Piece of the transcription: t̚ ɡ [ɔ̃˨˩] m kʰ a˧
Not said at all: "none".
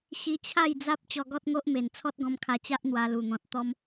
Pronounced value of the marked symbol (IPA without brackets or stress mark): ɔ̃˧